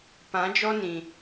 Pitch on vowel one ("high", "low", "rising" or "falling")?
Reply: rising